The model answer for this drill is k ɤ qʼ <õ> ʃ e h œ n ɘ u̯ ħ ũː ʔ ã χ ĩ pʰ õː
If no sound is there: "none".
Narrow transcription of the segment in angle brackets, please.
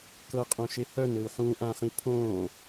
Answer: õ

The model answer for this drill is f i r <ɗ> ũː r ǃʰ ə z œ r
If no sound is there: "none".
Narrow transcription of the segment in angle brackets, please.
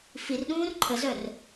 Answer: ɗ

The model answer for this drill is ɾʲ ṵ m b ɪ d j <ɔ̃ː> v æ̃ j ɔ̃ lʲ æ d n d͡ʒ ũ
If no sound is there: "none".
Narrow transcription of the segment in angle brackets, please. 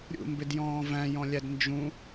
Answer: ɔ̃ː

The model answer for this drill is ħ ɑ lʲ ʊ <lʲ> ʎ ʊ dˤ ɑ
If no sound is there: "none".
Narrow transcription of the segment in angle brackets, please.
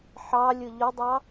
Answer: none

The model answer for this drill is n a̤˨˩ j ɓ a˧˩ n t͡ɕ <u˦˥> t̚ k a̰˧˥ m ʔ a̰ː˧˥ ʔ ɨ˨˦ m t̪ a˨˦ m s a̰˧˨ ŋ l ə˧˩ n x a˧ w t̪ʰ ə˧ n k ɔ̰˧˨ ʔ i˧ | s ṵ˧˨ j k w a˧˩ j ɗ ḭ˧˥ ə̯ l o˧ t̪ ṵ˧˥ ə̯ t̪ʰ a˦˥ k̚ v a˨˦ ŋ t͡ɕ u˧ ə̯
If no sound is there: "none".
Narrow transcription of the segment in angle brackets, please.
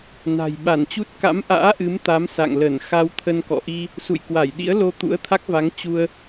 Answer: u˦˥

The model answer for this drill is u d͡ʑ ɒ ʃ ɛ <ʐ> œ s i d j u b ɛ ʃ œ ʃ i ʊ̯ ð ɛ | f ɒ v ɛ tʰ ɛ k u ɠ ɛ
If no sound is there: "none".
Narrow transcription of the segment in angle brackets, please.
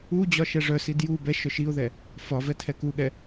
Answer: ʐ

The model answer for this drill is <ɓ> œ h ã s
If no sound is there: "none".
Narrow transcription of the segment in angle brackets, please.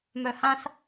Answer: m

